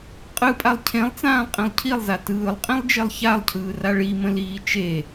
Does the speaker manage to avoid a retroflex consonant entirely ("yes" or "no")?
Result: no